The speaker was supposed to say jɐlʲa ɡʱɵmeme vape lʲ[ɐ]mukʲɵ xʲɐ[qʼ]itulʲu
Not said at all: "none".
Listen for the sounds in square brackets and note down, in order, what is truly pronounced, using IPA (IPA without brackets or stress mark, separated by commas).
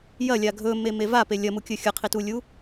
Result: ɐ, qʰ